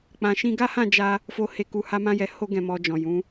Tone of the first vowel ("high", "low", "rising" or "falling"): low